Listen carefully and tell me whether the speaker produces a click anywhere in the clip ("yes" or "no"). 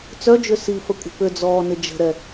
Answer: no